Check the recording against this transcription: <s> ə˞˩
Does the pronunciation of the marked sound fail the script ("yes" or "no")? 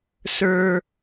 no